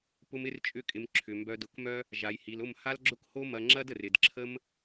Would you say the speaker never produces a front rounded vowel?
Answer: no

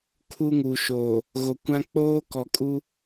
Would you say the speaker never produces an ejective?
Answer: no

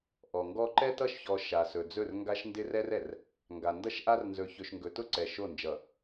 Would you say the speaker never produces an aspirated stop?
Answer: yes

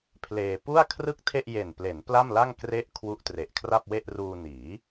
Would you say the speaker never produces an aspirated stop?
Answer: no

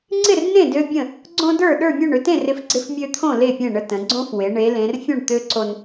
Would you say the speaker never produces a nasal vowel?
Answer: no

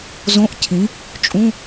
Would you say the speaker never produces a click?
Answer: yes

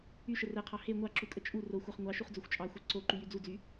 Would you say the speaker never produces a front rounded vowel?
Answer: no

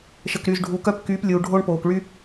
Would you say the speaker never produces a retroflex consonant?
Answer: no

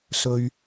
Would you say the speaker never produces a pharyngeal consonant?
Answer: yes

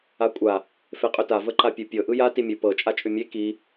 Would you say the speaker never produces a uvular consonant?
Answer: no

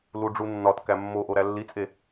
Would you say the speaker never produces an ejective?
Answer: no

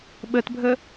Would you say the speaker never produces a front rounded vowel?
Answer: yes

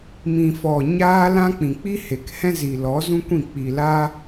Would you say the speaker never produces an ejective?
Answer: yes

